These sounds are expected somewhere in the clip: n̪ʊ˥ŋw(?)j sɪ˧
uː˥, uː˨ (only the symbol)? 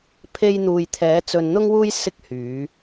uː˥